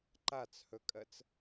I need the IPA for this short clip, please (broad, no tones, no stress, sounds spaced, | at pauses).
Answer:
ǃ a t͡s h ɵ kʼ ɜ t͡s